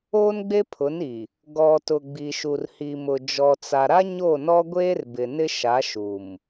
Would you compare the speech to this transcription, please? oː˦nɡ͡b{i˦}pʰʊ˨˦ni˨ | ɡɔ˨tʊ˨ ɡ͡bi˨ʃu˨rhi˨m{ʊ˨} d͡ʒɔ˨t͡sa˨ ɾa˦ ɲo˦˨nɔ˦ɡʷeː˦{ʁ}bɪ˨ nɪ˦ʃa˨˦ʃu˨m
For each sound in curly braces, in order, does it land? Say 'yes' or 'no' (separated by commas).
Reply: no, yes, no